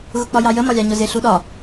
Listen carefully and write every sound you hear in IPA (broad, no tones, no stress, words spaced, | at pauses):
ɣʊk͡pɒjɑjə mɒlʲɑɲʊzɪ ɬuɗɒ